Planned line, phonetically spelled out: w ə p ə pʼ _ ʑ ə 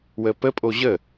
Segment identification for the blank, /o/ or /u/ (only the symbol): o